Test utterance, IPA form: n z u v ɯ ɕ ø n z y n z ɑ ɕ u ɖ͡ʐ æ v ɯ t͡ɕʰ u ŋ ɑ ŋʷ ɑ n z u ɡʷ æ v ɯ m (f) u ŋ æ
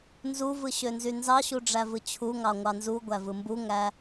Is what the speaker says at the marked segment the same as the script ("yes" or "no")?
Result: no